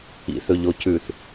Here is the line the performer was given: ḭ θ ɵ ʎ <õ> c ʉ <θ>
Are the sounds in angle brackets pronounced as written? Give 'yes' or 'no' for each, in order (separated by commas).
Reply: no, yes